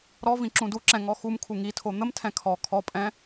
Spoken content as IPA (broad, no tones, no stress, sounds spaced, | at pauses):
ɾ ɔ v ĩ ǁ ũ d u ǁ ɛ̃ ŋ ɔ x u m kʰ u ŋ i tʰ o n̪ ə m tʰ ɛ̃ kʰ ɔ kʰ ɔ pʼ ɛ̃